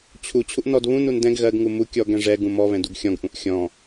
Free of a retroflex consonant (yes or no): no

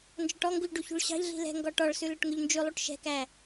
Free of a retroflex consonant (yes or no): no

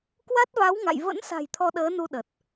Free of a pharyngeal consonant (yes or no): yes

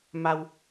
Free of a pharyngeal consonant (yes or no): yes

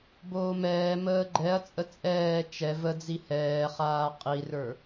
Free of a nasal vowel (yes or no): yes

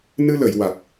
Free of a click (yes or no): yes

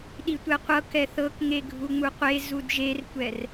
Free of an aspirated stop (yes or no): yes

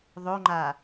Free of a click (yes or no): no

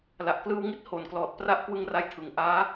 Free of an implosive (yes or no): yes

